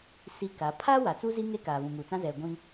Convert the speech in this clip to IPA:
s i˦ k a˨˦ pʰ aː˦ w a˨ t͡s u˦ z i˦ ŋ e˦ k aː˨ β ũ˨ ŋ uː˨ t͡s ã˦ z ɛ˨ ɡʷ ĩ˦

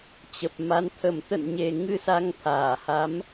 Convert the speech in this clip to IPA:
t͡ɕ ə˨˩ p̚ m a˨˦ n t̪ʰ ə˧˩ m t̪ ə̰˧˨ n ɲ e˨˩ ŋ ɨ˧ s a˨˦ ŋ t̪ʰ aː˧˩ h a˨˦ m

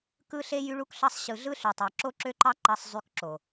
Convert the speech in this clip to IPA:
k ɯ˦ ɬ e˦ j y˦ ɭ u˦ k ɬ ɑ˦ sˤ ɕ ɯ˨ ɮ ɯ˦ ɬ y˨ tˤ ɑ˨ ǁ o˦ ǁ ø˦ ǃ ɑ˦ ǃ ɑ˦ sˤ zˤ y˦ k ǁ o˨

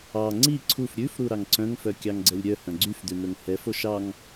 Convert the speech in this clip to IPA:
ɑ ŋ͡ǀ i ǀʰ u f ɾʲ ʉ f ɾ u ɾ ɑ ŋ ǀ œ̃ ŋ f œ kʲ ɑ ŋ ɡ͡ǀ ɛ lʲ ɾʲ œ h œ̃ ɡ͡ǀ y f d ʉ n̪ ɵ ŋ h ɛ f o ʃ ɑ ŋ

